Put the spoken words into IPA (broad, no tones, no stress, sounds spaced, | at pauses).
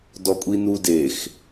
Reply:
d ɔ kʷʼ i n u d e x